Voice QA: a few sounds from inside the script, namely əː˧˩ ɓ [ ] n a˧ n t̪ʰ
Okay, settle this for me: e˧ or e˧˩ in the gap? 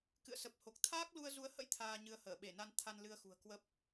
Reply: e˧˩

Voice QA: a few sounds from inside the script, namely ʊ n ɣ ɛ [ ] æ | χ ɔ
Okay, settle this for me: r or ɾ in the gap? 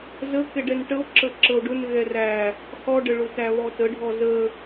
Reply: r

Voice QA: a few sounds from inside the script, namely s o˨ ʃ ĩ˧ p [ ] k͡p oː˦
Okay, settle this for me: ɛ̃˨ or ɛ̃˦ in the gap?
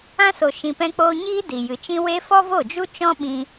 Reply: ɛ̃˦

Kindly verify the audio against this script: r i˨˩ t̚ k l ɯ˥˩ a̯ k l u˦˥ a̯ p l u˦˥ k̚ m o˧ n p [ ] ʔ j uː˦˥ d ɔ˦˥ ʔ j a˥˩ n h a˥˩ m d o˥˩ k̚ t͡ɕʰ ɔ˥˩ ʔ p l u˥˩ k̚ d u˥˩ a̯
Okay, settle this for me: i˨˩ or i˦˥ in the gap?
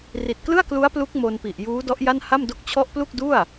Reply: i˨˩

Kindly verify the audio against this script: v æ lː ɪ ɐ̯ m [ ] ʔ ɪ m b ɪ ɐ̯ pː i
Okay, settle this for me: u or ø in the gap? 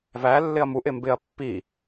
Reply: u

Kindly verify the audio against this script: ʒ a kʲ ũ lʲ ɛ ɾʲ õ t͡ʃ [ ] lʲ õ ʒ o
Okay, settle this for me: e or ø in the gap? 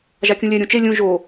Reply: e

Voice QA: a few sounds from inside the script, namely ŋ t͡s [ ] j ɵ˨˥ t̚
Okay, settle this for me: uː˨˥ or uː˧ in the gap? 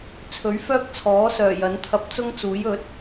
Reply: uː˨˥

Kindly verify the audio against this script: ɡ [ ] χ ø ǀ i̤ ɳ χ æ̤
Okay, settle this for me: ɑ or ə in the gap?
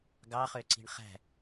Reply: ɑ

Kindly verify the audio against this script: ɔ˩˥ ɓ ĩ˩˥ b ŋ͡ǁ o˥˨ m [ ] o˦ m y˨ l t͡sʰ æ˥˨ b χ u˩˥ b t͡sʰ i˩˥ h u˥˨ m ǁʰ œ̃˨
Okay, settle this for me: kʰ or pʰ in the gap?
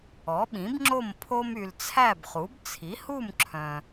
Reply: pʰ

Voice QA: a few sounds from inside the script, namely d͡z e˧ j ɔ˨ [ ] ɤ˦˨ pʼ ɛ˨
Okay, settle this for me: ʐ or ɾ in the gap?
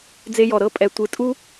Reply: ɾ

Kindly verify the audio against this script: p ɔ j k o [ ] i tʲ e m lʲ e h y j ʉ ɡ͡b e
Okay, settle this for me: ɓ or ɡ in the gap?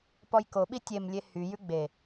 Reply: ɓ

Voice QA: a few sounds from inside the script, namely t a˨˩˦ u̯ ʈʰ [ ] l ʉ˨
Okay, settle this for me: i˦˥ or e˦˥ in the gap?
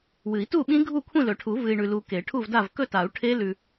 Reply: e˦˥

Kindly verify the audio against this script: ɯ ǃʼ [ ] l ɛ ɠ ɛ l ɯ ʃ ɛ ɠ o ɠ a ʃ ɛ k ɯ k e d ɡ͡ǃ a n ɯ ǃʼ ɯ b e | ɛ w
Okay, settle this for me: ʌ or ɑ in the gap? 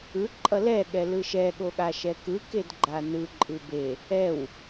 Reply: ʌ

